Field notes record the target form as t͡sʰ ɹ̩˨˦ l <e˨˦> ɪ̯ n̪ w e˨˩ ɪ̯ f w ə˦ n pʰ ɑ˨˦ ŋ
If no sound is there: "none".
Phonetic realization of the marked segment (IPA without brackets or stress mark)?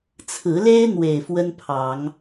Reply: e˦